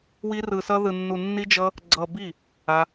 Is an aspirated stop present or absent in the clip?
absent